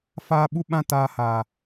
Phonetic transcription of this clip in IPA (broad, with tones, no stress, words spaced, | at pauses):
faː˦ɓu˦ɓã˦ taː˦haː˦